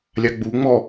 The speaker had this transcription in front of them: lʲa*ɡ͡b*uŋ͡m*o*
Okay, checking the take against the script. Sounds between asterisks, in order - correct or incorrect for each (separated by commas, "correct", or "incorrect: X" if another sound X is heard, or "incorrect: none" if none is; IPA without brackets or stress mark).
correct, incorrect: ɔ